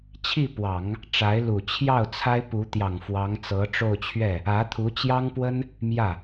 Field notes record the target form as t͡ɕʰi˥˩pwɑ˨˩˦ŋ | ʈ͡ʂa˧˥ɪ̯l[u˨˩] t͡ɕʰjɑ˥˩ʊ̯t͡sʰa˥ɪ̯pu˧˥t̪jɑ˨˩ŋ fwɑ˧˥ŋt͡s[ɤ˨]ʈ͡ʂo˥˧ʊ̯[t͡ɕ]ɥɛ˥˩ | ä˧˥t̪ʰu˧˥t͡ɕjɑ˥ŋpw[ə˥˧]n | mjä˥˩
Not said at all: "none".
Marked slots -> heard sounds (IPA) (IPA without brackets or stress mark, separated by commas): u˨˩, ɤ˧˥, t͡ɕʰ, ə˥